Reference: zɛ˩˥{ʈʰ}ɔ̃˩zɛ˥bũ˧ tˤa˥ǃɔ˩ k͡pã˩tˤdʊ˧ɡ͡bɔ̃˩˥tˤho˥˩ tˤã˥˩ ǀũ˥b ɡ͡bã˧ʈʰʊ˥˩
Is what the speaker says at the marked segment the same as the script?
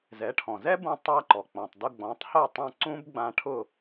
yes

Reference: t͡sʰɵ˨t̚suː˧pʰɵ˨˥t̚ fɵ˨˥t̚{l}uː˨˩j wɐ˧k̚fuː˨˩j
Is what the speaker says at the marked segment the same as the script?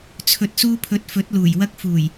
yes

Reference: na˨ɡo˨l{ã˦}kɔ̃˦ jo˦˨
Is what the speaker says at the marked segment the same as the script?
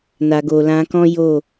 no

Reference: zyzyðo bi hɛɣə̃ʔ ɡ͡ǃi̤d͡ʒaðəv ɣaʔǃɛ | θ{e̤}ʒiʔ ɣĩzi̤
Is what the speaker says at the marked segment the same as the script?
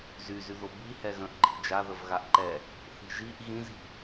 no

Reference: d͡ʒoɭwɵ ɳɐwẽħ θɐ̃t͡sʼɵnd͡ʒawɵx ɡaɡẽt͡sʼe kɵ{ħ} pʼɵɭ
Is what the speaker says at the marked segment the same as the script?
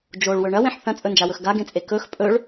no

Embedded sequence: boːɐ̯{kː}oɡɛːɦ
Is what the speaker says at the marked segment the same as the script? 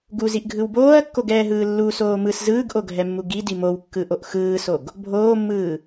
yes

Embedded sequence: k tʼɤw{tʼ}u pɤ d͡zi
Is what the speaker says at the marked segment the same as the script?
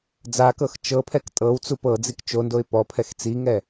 no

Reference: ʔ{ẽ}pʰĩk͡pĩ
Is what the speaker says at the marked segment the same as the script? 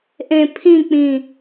yes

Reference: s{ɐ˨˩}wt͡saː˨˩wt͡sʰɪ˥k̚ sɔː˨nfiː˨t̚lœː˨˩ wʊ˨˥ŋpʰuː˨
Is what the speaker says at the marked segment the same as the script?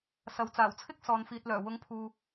no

